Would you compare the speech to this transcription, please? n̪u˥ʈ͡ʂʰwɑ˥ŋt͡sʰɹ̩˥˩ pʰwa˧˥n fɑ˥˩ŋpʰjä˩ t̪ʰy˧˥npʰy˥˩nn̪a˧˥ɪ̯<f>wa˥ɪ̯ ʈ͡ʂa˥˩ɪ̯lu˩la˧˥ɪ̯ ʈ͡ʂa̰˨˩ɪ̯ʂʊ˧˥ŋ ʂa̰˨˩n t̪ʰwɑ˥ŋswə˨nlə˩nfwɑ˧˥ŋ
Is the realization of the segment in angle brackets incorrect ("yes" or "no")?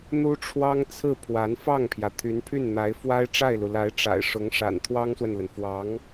no